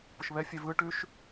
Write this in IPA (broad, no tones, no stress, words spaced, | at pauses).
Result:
pʊʃβɛfʲɛ vɯ ʈʉʃ